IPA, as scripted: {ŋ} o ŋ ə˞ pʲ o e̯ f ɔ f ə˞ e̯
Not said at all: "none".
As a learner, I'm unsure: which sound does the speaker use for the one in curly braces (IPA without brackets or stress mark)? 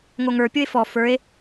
ŋ